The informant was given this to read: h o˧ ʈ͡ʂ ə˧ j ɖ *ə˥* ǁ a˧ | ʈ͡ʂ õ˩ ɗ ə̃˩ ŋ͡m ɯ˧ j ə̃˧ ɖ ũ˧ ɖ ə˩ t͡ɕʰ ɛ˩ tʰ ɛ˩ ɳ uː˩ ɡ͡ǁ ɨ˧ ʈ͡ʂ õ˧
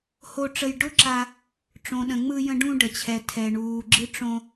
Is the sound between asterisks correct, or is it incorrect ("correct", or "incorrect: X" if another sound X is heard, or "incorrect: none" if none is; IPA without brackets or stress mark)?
incorrect: ʊ˥